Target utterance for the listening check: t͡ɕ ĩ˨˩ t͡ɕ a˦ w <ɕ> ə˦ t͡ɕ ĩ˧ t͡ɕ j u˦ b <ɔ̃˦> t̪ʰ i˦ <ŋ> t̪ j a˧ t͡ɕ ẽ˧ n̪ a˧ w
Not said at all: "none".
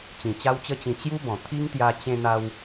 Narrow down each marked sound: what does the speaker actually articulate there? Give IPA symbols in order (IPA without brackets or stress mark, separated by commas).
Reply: t͡ɕ, ɔ̃˨˩, ŋ